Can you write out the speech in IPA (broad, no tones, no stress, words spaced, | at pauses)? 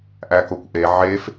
ʔækokʷʔe ʕef